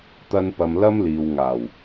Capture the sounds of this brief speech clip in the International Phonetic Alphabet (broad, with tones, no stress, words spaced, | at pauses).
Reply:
t̪ɐ˧npɐ˨m lɐ˥mliː˨w ŋaː˨˩w